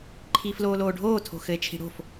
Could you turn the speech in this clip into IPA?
ǃʰ iː f l oː l oː ɖʱ oː tʰ o̤ x ɘ e̯ t͡ʃʰ i̤ ɽ o̤ f

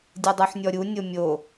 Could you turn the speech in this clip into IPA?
dʲ ɯ dˤ u ħ nʲ ɔ ɾʲ u nʲ o mʲ o

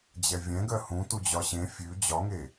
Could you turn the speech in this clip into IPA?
d͡ʑ ɛ vʲ ɛ̃ ɡ ɜ h ũ t u d͡ʑ ɒ ɕ ẽ fʲ ʉ d͡ʑ ɒ ŋ e

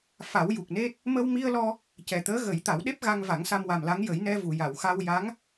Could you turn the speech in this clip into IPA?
f a˨˩˦ w j u˨˩ k̚ n e˦˥ t̚ | m ə˧ w m i˧ ə̯ l ɔ˧ | c ɛ˨˩ t̪ əː˧˥ ɣ ə˨˩˦ j t̪ a˨˩˦ w ɗ e˦˥ p̚ ɣ a˧ ŋ v a˨˩˦ ŋ s a˧ m w a˨˩ m l a˧˥ ŋ j ə˨˩˦ j n ɛ˧ v u˨˩˨ j a˨˩˨ w x a˧ w j a˧˥ ŋ

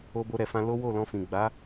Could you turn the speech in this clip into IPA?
o˧ b o˧ ɾ ɛ˨ f ã˧ l o˦ w o˦˨ l ɔ̃˧ f ĩ˨ ɡ͡b a˨˦

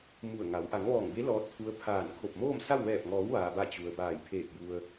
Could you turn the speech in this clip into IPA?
m u˧˩ ə̯ ŋ a˩˧ w ʔ a˩˧ ŋ ʋ ɔː˧˩ ŋ b e˧˥ l ɔː˧˥ t̚ t̪ʰ u˧˥ ə̯ pʰ aː˧˩ n kʰ o˧˩ p̚ m oː˥˨ m s a˥˨ w ʋ ɛː˧˩ p̚ ŋ ɔː˩˧ w ʋ aː˩ b a˧˩ t͡ɕ u˩ ə̯ b aː˧˩ j pʰ eː˧˩ k̚ j u˩ ə̯

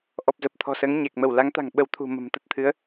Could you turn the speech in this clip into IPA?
ʔ ɔ˨˩ p̚ z ə˨˩ p̚ t̪ʰ ɔ̤˨˩ s əː˨˦ ŋ ɲ e˨˩ k̚ m ə˧˩ w l a˨˦ ŋ t̪ a̤˨˩ ŋ ɓ ə˨˦ w t̪ʰ ṳ˨˩ m ə̤˨˩ m t̪ ə˦˥ t̚ t̪ʰ ɨ˨˦ ə̯

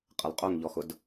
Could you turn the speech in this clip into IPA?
qʼ ə lˠ qʼ o ŋ ʎ ɔ x ʊ d

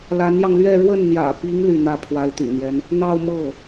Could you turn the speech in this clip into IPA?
l a˧˥ n j ɑ˧ ŋ l ɥ ɛ˥˧ ɻ w ə˥˩ n n̪ j ä̰˨˩ p i˧˥ ŋ l y˥˧ n̪ ä˥˩ pʰ w a˧˥ ɪ̯ t̪ y̰˨˩ n̪ j ɛ˦ n | n̪ ɑ˥˧ ʊ̯ m ɤ˥˩

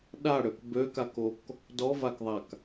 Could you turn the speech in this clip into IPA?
ɗ a ɽ ø k b ø k a k o k | d ɔ v a k ðˤ a k

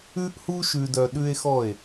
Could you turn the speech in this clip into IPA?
ʉ˦ ʔ h u˦ ʃ ʉ˦ d œ˦ ɗ ʉ˦ e̯ x ɔ˦˨ e̯

